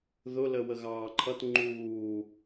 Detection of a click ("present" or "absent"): present